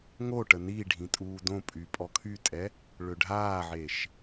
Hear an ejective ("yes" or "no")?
yes